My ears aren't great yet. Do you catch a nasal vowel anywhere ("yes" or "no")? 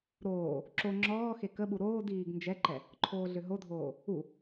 no